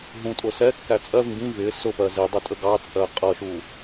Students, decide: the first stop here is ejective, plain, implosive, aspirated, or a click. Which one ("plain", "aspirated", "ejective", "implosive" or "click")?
ejective